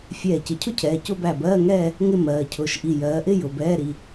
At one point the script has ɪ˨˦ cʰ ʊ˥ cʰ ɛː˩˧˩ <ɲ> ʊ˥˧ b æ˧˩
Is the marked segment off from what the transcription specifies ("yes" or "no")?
yes